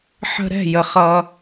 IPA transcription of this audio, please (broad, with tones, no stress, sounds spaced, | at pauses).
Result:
ħ ə̤˧ ɾ ɛ̤˦˨ j ə˨ χ ʌ˧